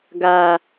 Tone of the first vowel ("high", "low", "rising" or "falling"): low